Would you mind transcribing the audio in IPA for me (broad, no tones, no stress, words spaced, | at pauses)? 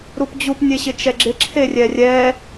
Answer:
ɾupd͡ʑup nʲeɕɪt͡ʃɛɡ͡ǁɪ ǁʰerʲɛrʲɛ